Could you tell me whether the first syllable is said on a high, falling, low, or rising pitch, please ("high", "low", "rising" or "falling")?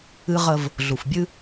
high